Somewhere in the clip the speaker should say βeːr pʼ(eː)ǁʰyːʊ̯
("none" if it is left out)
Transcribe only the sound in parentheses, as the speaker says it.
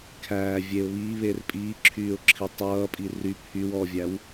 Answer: iː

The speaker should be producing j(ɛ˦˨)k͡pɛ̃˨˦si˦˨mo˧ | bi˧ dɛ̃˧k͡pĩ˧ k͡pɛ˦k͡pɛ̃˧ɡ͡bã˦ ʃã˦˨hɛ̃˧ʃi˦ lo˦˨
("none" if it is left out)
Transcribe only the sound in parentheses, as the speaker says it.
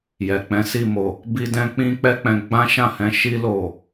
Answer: ɛ˨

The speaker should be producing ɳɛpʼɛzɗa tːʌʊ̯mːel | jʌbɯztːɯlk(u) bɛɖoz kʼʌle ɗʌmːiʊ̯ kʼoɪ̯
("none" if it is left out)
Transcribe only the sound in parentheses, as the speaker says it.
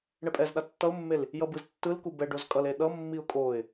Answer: u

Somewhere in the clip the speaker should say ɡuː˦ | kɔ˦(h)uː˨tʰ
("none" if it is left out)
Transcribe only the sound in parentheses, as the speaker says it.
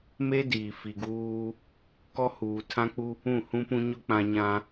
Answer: h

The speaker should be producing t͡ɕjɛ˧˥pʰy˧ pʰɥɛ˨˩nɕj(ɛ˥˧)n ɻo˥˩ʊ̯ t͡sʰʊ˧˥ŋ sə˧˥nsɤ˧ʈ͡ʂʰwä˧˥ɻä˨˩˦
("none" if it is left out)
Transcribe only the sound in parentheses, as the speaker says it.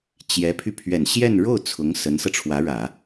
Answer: ɛ˥˧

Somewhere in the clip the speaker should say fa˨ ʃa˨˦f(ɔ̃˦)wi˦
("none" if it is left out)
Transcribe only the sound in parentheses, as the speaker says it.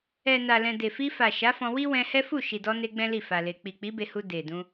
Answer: ɔ̃˧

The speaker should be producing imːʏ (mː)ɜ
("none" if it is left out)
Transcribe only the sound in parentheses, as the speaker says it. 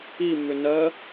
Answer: n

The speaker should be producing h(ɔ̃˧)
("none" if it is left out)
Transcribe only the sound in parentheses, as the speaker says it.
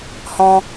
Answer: ɔ̃˧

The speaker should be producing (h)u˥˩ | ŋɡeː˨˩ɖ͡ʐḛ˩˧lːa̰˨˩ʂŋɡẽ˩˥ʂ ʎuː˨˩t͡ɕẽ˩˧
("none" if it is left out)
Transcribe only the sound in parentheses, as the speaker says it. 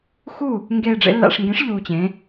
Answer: x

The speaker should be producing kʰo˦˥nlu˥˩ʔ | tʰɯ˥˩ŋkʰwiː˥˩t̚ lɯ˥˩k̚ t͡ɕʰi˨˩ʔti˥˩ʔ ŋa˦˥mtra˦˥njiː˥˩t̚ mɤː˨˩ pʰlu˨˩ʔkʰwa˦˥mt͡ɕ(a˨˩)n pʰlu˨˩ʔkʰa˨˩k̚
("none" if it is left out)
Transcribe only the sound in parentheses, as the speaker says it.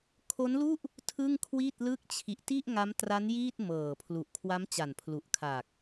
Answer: a˨˩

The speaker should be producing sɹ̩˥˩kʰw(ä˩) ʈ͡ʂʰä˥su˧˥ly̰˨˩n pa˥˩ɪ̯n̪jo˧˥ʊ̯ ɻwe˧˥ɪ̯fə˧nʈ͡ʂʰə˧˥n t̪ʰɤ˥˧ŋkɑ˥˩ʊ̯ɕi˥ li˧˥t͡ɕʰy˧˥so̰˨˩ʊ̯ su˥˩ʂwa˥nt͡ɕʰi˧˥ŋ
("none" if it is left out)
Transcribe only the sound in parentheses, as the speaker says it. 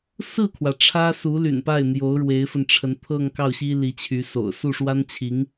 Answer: ä˩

